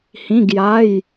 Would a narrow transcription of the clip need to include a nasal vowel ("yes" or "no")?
yes